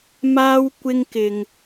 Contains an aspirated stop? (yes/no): no